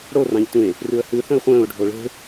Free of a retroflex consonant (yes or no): no